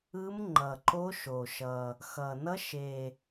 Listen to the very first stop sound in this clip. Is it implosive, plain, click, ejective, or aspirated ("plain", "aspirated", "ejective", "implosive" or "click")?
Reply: click